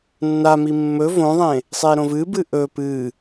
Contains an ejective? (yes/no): no